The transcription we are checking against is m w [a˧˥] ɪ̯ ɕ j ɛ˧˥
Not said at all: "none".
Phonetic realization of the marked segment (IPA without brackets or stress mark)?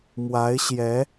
a˧˥